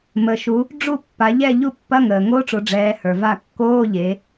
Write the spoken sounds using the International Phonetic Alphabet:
m ə˩ ʃ u˩˧ | ɖ͡ʐ u˦˨ pː a˩˧ ʎ ɛ˦˨ ʎ u˦˨ pː ɐ˧˥˧ ŋ əː˩ ŋ o˧˥˧ ʈ͡ʂ o˩˧ ɖ͡ʐ ɛː˩˧ h ə˞˩ v a˦˨ kː oː˧˥˧ ʎ e˩˧

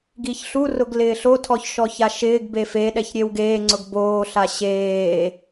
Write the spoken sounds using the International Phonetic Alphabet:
ɡ i ç ɬ u r ʊ ɡ l ɪː ɬ o tʰ ɔ ç ʃ ɔ ç a ʃ ɪː ɡ b eː f e ɗ ɛ ç ɾʲ e w ɡ eː ŋ͡ǀ ʊ ɡ b oː ɬ a ɕ eː

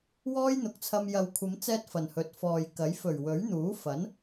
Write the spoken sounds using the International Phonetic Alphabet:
w ɔː˥ j n̪ ʊ˨˥ k̚ t͡sʰ ɐ˧ m j ɐ˨ w kʷʰ ɐ˨˧ m t͡s ɛː˧ t̚ f ɐ˨˩ n h ɵ˨˥ t̚ f ɔː˨ j k ɐ˨˥ j f ɵ˨˩ ɥ w ɵ˨˥ ɥ n̪ uː˨˥ f ɐ˨˥ n

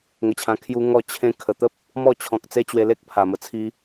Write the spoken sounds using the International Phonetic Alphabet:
ŋ ə˧ t͡ɕʰ ã˧ kʰ j u˦ ŋ ɔ˥˧ t͡ɕʰ ẽ˧ kʰ ə˨˩ t̪ ə˦ p̚ | m ɔ˥˧ t͡ɕʰ ɔ̃˨ k̚ t͡s e˦ t͡ɕ w e˧ l e˦ k̚ pʰ a˨˩ m ə˨˩ t͡sʰ i˧

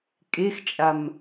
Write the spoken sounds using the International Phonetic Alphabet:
kʼ e x t͡ʃʼ a m

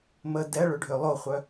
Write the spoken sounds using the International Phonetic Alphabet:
m ə d ɛ ɭ ø ɖʱ ø lˠ o χʷ œ

